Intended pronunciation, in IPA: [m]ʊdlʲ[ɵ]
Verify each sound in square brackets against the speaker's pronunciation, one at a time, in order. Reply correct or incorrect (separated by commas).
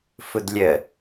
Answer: incorrect, incorrect